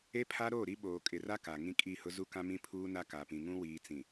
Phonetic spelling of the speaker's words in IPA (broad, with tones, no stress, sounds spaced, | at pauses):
e˦ pʰ a˦ ɾ oː˦˨ ɾ i˦ ɓ oː˨ kʼ ɪ˨ r a˦ k a˨ ŋ ĩ˦ kʼ i˦˨ h ʊ˦ z u˦ k ã˦ m ĩ˦ pʰ uː˦ n a˦ k a˨ p ĩ˨ ŋ ũ˦ w iː˨ t͡s ĩ˨